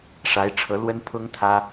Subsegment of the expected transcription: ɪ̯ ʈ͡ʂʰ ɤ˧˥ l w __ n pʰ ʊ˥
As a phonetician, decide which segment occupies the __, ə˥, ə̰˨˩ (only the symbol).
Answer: ə˥